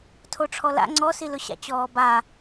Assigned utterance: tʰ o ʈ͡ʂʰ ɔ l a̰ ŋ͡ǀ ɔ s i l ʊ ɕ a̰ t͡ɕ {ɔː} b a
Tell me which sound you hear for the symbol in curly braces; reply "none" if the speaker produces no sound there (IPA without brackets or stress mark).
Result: ɔː